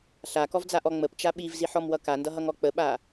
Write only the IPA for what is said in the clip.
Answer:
ɬ a k ɔ v d͡z a ʔ ɔ ŋ͡m ə p t͡ʃ a ɓ i v z i ħ ɔ m w ʌ k a n d ʌ ɦ ʌ ŋ ɔ k͡p ə ɓ a

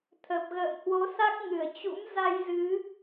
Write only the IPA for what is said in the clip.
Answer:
t̪ʰ ə˨˩ p̚ ɣ ə̰ː˧˨ m h w o˨˦ s a˦˥ k̚ ŋ ɨ˧˩ ə̯ t͡ɕ ṵ˧˥ m z a˧ j z ɨ˨˦

